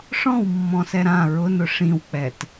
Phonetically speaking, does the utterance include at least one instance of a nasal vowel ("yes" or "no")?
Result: yes